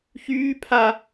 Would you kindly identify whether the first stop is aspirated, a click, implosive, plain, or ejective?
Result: aspirated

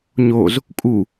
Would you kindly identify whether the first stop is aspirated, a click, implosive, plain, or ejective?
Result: ejective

